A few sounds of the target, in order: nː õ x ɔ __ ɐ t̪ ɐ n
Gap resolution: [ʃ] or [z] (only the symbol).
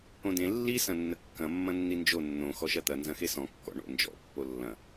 ʃ